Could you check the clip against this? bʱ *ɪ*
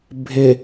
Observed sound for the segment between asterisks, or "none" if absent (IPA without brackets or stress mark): ɪ